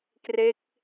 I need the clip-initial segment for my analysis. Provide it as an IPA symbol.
k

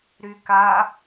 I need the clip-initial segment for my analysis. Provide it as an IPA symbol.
ɾ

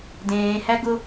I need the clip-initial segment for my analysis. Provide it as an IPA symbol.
d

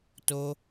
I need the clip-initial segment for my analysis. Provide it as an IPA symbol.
t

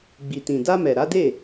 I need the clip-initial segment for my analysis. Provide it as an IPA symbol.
ɡ͡b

